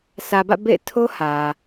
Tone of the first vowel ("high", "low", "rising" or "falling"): low